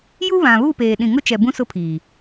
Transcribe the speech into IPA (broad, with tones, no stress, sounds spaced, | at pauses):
j u˦ β ã˨ β u˦˨ p eː˨ ɗ ĩ˨ ŋ ʊ˦ t͡ʃ ɛ˨ b ũ˦ s ʊ˦ pʰ iː˨